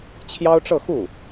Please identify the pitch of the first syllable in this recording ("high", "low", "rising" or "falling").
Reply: high